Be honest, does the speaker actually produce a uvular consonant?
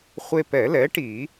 yes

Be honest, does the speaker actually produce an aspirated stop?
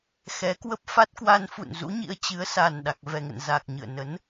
no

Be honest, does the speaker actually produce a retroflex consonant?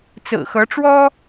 yes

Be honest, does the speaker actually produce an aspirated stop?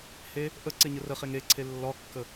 yes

